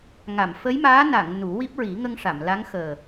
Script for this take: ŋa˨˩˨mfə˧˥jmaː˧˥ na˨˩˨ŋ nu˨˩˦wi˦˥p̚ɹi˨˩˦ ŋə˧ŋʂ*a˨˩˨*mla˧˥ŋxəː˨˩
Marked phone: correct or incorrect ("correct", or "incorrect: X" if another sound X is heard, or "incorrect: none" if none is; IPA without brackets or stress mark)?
correct